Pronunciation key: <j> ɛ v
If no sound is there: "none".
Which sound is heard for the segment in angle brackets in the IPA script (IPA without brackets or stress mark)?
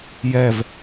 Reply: j